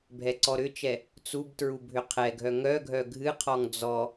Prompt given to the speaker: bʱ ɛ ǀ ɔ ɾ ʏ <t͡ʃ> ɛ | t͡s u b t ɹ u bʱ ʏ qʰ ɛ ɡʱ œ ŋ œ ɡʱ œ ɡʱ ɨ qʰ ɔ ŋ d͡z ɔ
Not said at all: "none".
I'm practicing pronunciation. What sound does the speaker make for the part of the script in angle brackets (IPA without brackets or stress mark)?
t͡ʃ